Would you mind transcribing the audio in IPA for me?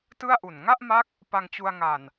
t ɯ˥˩ a̯ ʔ u˨˩ n ŋ a˥˩ ʔ m a˦˥ k̚ | p a˧ ŋ t͡ɕ u˧ a̯ ŋ a˨˩ n

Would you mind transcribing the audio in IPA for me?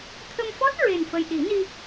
t̪ʰ ə˧ m f ɔ˦˥ t̚ ɹ e˨˩ n f ə˨˩ j ɗ i˨˩˦ n i˧

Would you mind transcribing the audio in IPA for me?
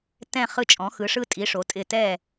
t ɛ̃˧˩ χ ɯ˧˩ t͡ʃʼ ɔ̃˩˧ x ɯ˩˧ ʂ ɯ˧ tʼ i˩˧ ʂ o˩˧ tʼ ɪ˧˩ t ɛ˧˩

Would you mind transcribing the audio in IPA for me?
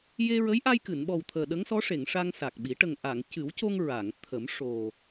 j e˧ ɹ ə˧˥ j ʔ a˧ j k ɨ˨˩˨ n ɓ ɔ˨˩ w t̪ʰ əː˨˩ ɗ ə˧˥ ŋ s ɔ˧˥ ʂ e˨˩˨ ŋ ʂ a˧ ŋ s a˨˩ k̚ ɓ i˨˩˦ ʈ ə˨˩ ŋ ʔ a˨˩˨ ŋ c ɨ˨˩˦ w c o˧ ŋ ɹ a˨˩˨ ŋ t̪ʰ ə˨˩˦ m ʂ o˨˩

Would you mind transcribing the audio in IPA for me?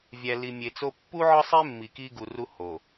vʲ æ˨ l i˨ mʲ e˨ t͡s o˦ pː u˦ ʕ ɒ˦ sˤ e˦ mː i˨ k i˦ ɡ u˨ r u˦ h o˨

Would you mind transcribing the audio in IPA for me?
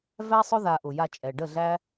v æ˦ sˤ ʊ˦ ð a˧ ʔ ʊ˨ j a˧ t͡ʃʼ ɛ˨ ɖ ə˦˨ ɮ æ˦

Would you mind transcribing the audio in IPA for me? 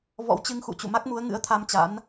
v ɔ̰˧˥ w t͡ɕ ɨ˧ ŋ x ṵ˧˨ t͡ɕ ṵ˧˨ m a˦˥ k̚ m u˨˦ ə̯ ŋ ɨ̰˧˥ ə̯ t̪ʰ a˧ m t͡ɕ a̰˧˥ n

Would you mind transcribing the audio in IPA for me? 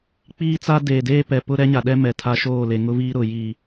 k͡p iː˦ t͡s a˦ d eː˨ d eː˦ p ɛ˨ p ʊ˦ ɾ ɛ˦ ɲ a˨ ɗ ɛ˦ m ɛ˨ tʰ a˦ ʃ oː˦˨ l e˨ ŋ ʊ˦ v iː˦ ɾ ʊ˨ j i˨

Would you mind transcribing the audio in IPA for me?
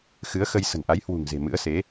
x ɨ˨˦ ə̯ x ə˧ j s ə̤˨˩ n ʔ a˨˦ j h w ṳ˨˩ ŋ z e̤˨˩ m ɨ̰˧˥ ə̯ s e˨˦

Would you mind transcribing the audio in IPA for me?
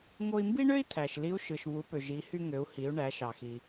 ŋ o˧ i̯ m b i˥ ɳ ø˥ i̯ t̪ʰ æ˩ ʃ l i˧˥ u̯ ʃ ɯ˩ ʃ β u˩˧ p ø˩ ʒ i˩˧ h y˧ ŋ ø˩˧ u̯ h i˩˧ u̯ ɳ æ˩˧ ʃ ɑ˩ x i˩

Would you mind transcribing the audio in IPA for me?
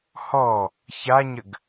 h ɔ | ç a ɲ ə ɡ

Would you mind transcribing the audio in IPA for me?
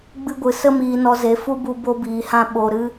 ɡ͡b ɨ˧ ɡʷ ɨ˨ s ə˧ m iː˨ n ɔ˨ z e˨ f u˦ b u˧ b o˧ b iː˨ h ã˧ ɓ o˨ ɾ ɨ˧

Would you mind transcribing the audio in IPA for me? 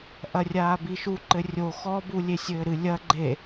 ʔ ɐ rʲ aː b i ʃ u ǃ ɘ rʲ o x ɔ b u lʲ e sʲ ɘː ɾ ɨ lʲ ɐ ɡ͡ǃ e

